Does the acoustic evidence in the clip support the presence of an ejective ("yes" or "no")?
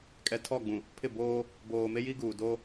yes